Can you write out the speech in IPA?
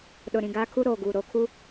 ɗ ʊ˨ ɾ ĩ˨ ɡ aː˦ kʰ u˦ ɾ oː˨ ɡ uː˨ ɾ oː˨ kʰ u˦

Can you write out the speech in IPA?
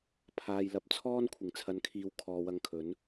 pʰ aː˨ j l ɐ˨ p̚ t͡sʰ ɔː˥ n kʷʰ ɪ˨˩ ŋ t͡sʰ ɐ˨˧ n kʰ iː˨˧ w kʰ ɔː˨ w ɐ˧ ŋ kʰ ɵ˨˥ n

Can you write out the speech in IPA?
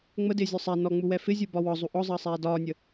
ŋ͡m ə d ɪː zʲ ɔ sˤ ɛ n ɔ ŋ͡m u w ɛ f ɪ zʲ u b ɒ w ɒ zˤ u ʔ ɔ zˤ əː sˤ ɛː d ɒː nʲ ə

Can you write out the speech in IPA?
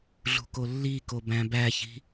ɮ ṳ k o lː i k o b æ̃ b æ ç i̤

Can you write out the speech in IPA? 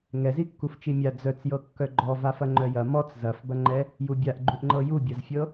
ŋ ɛ z i kː u f t͡ʃ i mʲ a d͡z œ t͡s j ɤ kː œ ɡ͡ǃ ɔ v a f ɐ ŋ͡ǃ œ j ɐ m ɔ t͡s z ɐ f b ɐ ŋ͡ǃ ɛ | j u bʲ a ʔ ɡ͡ǃ u ʔ ŋ͡ǃ ɤ j u bʲ ɐ z fʲ ɤ

